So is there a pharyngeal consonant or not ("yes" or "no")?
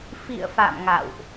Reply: no